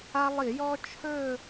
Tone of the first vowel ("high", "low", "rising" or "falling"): high